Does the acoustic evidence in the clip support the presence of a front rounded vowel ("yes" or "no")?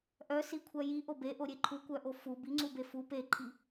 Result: yes